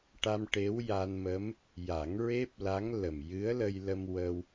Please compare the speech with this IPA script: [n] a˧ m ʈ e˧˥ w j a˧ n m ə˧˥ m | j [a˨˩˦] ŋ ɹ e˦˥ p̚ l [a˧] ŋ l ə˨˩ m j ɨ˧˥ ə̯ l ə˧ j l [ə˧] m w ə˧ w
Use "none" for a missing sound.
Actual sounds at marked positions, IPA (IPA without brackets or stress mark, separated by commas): ʈ, a˨˩˦, a˧˥, ə˧